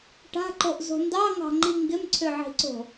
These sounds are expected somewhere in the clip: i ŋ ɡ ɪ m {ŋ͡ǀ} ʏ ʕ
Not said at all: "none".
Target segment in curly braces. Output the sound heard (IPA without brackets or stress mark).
ǀʰ